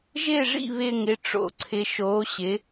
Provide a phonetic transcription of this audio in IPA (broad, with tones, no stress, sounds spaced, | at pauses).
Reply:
ʒ ɪː˥˧ ʐ ḭ˥˧ β ɪː˥˧ ŋ ɪ˥˧ ʈ͡ʂ o̰˧˥ ǀʰ ɪ˧˥ ʃ oː˧˥ ɕ ɪ˧˥